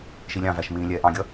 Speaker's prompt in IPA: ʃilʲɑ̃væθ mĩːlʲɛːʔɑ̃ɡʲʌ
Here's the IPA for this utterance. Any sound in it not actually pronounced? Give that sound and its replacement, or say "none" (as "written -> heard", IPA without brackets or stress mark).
θ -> ʃ